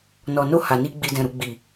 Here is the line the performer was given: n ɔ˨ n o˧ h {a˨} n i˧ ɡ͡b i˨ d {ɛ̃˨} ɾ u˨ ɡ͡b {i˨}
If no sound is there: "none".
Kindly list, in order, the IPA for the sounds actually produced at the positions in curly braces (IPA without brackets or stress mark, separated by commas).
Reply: a˨, ɛ̃˨, i˨